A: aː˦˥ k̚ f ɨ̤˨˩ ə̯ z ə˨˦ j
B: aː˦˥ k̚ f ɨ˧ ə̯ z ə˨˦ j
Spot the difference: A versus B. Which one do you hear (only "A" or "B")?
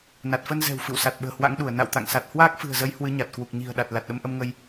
A